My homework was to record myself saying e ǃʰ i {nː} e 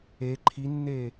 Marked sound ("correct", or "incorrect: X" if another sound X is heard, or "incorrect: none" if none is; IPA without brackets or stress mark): correct